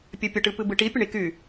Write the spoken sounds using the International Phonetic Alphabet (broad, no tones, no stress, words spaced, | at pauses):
pʲɛpʲəʈɨpɨ bɨʈi pʲəɳiky